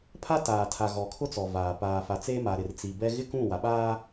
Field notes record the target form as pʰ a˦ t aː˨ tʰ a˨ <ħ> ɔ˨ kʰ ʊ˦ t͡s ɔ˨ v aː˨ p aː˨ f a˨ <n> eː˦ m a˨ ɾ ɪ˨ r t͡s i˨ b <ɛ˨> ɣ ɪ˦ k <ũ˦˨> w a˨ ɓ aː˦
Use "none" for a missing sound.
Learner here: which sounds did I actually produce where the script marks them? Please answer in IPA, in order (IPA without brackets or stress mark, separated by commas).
ɣ, t͡s, ɛ˦, ũ˦˨